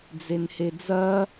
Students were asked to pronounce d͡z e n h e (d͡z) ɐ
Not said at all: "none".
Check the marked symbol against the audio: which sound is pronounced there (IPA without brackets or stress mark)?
d͡z